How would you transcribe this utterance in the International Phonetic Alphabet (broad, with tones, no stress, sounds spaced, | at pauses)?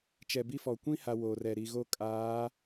t͡ʃ ɛ˨ b i˦ f ɔ˨ kʷ ĩ˦ h a˨ w oː˨ r ɛ˨ ɾ i˨ ɣ o˦ kʼ aː˨˦